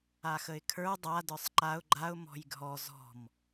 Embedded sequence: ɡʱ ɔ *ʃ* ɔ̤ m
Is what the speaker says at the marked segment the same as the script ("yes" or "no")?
no